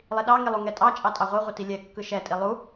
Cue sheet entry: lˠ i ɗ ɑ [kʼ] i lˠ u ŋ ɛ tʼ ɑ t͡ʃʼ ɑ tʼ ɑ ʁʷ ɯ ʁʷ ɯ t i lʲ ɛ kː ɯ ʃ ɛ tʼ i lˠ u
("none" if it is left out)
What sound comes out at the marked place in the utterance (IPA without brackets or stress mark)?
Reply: ŋ